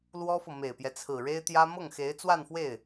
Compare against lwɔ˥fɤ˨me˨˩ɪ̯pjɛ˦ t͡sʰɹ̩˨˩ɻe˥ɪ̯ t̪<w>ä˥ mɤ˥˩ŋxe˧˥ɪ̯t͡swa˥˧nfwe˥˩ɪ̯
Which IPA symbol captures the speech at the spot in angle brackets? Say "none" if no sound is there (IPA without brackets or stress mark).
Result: j